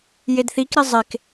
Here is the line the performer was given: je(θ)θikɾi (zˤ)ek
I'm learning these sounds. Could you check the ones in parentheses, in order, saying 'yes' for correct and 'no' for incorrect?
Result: no, yes

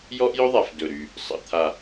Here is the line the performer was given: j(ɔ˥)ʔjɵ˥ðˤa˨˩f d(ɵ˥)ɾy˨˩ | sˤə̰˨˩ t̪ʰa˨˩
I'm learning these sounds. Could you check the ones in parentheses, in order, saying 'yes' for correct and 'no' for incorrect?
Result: yes, no

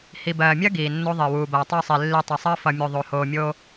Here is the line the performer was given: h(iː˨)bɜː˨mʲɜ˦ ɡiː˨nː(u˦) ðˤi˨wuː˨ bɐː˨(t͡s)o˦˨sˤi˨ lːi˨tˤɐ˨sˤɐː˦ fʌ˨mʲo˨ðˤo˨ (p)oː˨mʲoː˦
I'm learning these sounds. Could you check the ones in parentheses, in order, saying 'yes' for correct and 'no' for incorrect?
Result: no, no, no, no

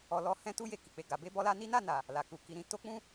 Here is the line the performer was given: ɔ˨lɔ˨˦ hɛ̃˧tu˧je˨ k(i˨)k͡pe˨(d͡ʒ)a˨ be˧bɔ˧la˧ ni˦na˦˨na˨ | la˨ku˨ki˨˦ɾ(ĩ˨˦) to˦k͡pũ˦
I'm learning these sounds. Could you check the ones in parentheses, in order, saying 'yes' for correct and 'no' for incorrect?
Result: yes, no, no

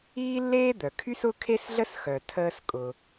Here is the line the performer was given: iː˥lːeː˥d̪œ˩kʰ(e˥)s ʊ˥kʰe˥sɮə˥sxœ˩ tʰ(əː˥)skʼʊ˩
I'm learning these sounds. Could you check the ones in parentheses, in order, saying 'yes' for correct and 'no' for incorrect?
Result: no, yes

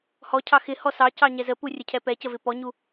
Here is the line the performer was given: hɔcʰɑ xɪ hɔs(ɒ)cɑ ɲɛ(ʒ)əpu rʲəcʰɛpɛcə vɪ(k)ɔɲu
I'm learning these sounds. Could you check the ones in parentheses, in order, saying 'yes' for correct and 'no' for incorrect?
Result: no, no, no

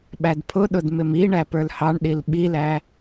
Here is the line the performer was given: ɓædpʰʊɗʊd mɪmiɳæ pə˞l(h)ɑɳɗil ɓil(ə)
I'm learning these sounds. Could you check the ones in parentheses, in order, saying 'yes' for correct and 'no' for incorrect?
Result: yes, no

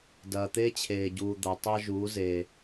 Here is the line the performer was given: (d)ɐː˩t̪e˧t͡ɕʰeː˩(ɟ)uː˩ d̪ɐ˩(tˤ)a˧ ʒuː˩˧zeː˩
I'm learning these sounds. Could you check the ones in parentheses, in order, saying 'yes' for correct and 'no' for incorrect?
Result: yes, yes, yes

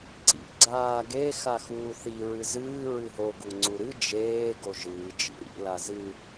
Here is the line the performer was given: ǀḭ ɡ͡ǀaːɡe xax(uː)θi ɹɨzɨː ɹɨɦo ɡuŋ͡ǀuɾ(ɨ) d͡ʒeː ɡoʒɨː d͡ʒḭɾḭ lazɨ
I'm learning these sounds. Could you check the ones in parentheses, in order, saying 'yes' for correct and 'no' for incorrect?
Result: yes, yes

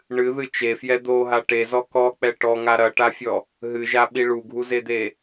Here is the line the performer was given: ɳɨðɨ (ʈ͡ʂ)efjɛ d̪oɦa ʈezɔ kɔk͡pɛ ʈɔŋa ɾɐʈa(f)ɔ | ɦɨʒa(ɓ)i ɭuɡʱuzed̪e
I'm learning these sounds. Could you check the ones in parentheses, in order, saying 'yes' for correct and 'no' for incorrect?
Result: no, no, yes

